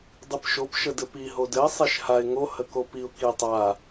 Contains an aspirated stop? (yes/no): no